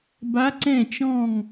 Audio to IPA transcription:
b a˧˥ ǀ ɛ̃˥˨ t͡ʃ ɔ̃˥˨ ŋ

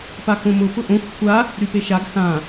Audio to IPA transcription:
p a x õ m ʊ p ʊ ʔ õ xʷ kʷʰ a | ɾ y p e ʃ a ɡ x ã

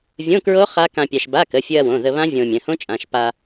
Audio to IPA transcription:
vʲ õ˧˥˧ k ɹ o˦˥ χ a˦˥ k ã˧ pʲ a˧ ʃ b a˧˥˧ k ə˩˧˩ fʲ ɵ˧ ɐ̯ w õ˩˧˩ ð ə˧ β ã˦˥ vʲ õ˧ mʲ ə̃˩˧˩ h õ˦˥ t͡ʃʼ ã˩˧˩ ʃ p a˧

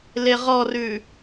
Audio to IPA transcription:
l e ʁ ɔ r ʉ

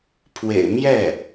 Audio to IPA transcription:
pʰ w ḛ˨˩ ɪ̯ m j ɛ˥˩

